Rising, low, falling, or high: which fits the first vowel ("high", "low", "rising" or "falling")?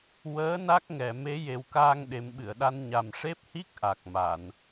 rising